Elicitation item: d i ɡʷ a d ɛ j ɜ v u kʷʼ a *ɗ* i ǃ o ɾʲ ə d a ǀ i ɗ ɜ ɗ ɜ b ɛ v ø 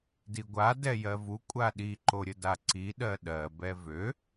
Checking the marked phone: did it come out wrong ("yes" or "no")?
no